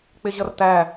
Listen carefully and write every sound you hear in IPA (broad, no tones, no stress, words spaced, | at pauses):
k͡pɪʑʌrtæ